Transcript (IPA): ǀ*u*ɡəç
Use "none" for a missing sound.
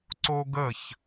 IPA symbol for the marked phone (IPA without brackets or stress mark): o